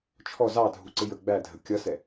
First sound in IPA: t͡ʃʰ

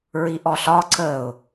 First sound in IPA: ɹ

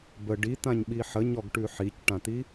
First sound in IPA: b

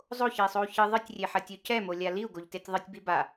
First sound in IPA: zˤ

